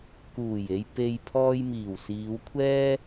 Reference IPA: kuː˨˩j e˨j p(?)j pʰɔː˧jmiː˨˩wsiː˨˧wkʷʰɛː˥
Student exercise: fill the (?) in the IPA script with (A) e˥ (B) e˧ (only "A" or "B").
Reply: B